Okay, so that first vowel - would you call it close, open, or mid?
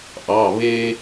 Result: open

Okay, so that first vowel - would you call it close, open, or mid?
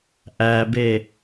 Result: open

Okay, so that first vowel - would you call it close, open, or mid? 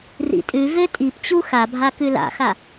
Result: close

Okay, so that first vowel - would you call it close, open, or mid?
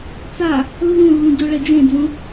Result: open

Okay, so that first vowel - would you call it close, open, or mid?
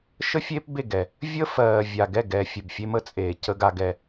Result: mid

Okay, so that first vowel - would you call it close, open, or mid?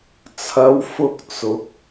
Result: open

